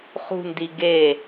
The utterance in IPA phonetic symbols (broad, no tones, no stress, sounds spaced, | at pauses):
χ ṳ n d i ɡ e